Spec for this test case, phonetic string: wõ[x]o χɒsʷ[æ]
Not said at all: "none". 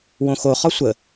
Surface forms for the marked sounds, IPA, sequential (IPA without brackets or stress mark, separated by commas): x, ə